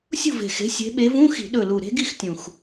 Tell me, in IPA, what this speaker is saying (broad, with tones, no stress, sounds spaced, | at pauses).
sʲ ṳ˥˨ v e̤˨˩ x e̤˨˦ sʲ e̤˨˦ ɓ e˨˦ v ũ˧˥˧ x i̤˧˩˧ ɗ ɵ˨˩ l u˨˩ ɾ e̤˦˥ ɡ i˥˨ x tʲ ũ˨˩ x